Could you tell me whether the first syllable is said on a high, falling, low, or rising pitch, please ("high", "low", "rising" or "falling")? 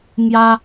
high